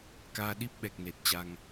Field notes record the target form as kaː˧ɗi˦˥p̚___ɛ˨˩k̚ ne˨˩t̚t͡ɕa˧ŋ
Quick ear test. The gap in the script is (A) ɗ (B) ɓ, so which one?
B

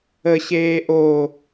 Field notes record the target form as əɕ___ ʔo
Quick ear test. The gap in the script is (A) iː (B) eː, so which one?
B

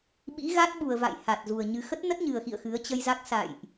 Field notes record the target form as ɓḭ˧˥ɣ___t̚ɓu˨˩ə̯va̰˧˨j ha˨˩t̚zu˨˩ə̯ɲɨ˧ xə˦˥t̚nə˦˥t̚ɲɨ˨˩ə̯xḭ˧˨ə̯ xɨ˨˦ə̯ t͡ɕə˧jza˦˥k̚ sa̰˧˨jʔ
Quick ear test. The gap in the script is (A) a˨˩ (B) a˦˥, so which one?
B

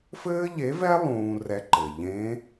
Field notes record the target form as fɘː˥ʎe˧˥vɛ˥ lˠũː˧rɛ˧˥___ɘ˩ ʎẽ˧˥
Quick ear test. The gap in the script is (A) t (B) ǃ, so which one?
B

